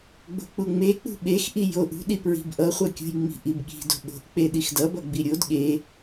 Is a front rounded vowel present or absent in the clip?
absent